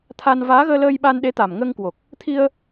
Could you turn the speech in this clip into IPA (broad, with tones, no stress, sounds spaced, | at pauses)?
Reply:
t̪ʰ a˧ n v aː˨˦ ɣ əː˧ l əː˧ j ɓ a˧ n ɗ e˨˦ t̪ a˨˩ m ŋ əː˧ ŋ k w o˨˩ k̚ | t̪ʰ i˧ ə̯